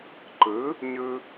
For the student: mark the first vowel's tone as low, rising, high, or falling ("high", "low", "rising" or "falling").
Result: rising